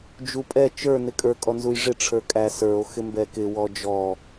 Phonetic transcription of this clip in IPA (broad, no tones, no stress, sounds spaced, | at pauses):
d͡ʒ u pʼ ɛ t͡ʃ ə˞ n ɪ kʼ ə˞ kʼ ɔ n z u j ʐ ɪ ʈ͡ʂʰ ə˞ kʼ æ s ə˞ o̯ x ɪ m b ɛ k ɪ w ɔ d͡ʒ ɔ